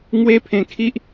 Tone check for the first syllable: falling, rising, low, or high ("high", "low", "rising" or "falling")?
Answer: high